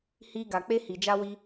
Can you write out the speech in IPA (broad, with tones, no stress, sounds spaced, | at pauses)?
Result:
h i˦ ɡ a˧ k͡p e˦ h i˧ d͡ʒ a˦ w i˦